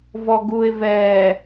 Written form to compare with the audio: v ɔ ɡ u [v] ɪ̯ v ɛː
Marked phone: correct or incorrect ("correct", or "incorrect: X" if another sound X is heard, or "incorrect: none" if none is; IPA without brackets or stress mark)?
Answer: incorrect: none